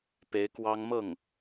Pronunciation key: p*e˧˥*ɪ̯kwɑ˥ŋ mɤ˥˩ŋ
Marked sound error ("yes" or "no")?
no